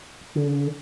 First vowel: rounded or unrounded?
rounded